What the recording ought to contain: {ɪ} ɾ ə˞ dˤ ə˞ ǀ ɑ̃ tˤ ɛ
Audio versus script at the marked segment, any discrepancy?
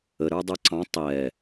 yes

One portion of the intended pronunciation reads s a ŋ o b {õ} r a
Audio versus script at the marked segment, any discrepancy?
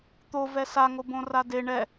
no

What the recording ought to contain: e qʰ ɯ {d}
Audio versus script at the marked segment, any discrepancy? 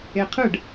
yes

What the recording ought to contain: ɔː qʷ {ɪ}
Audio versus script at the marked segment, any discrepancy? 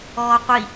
yes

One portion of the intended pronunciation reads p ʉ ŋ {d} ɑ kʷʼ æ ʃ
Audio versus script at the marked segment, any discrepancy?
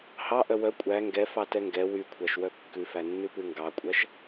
yes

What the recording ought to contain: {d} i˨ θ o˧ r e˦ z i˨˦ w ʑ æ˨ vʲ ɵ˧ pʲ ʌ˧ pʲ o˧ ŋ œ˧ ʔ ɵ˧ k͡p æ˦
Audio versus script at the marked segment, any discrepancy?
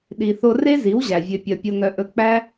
yes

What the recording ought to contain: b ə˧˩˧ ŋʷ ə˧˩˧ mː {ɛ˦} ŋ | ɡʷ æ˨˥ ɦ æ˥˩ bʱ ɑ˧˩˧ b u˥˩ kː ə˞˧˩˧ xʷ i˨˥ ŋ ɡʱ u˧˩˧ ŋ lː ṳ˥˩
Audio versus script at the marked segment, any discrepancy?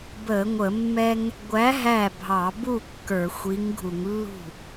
no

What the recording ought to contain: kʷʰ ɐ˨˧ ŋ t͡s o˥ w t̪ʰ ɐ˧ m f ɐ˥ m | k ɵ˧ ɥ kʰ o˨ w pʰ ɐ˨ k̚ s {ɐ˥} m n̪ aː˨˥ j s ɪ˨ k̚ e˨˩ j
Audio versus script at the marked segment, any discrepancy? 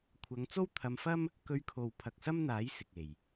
no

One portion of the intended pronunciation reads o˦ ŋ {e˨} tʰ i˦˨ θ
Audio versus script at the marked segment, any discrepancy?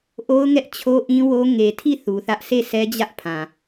no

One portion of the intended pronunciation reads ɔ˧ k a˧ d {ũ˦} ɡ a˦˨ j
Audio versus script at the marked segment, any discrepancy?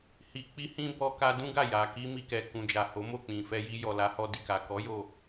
no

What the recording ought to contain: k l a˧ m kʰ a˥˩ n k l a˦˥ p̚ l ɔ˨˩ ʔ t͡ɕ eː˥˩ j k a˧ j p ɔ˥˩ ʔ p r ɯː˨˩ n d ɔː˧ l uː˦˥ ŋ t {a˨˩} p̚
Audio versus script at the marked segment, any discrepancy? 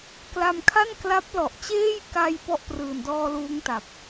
no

